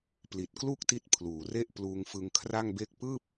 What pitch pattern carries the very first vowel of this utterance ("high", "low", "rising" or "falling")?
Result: low